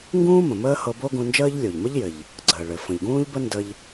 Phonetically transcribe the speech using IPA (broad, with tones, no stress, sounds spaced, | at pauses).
ŋ ɡ ũː˥ m ə̃˩ m əː˥ h ɤ˧ b o˥ ɡ ũ˧ n d͡ʒ əː˥ ʎ lʲ o˩ ʎ m ə˥ ʎ j ɘ˩ ʎ | ɡ͡ǀ əː˩ ɭ ɘ˩ f ə̃˩ ʎ ɡ ũː˥ ʎ b ə˥ n d ə˧ ʎ